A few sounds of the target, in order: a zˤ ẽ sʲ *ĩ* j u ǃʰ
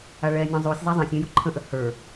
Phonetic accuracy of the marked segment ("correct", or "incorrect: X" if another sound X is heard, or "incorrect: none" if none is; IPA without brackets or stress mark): incorrect: ẽ